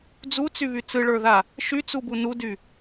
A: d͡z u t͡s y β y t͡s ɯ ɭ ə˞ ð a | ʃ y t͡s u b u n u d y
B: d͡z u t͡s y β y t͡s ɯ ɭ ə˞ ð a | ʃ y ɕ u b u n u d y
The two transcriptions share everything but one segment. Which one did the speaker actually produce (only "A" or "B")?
A